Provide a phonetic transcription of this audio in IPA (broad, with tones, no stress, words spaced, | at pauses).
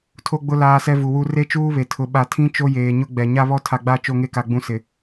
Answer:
tʰo˦ɡ͡bʊ˦ laː˦sɛ˦vu˨wu˦ re˦t͡ʃuː˦βe˨ tʰʊ˨ ɓa˨tʰĩ˦ t͡ʃo˦jeː˨ɲʊ˦ ɡ͡bɛ˨ ɲa˦βɔ˦ tʰa˨ɡ͡ba˦˨ t͡ʃo˦˨ŋe˦ka˨ ɡ͡bũ˦ sɪ˨